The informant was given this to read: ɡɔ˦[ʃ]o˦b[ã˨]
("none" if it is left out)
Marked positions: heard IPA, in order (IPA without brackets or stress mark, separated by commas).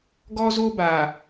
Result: z, a˨